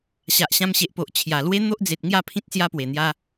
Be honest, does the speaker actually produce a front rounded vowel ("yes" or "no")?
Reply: no